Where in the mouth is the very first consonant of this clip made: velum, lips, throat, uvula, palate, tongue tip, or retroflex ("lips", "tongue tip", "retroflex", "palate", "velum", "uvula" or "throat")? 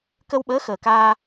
velum